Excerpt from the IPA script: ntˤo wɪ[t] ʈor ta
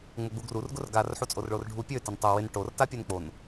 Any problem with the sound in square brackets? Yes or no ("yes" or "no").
yes